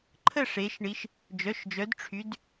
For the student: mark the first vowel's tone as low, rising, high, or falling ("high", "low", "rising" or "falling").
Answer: falling